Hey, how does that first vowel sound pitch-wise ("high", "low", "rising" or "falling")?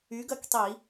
rising